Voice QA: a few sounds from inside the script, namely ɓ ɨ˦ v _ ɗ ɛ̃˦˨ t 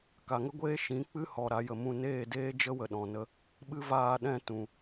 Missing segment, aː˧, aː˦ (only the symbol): aː˧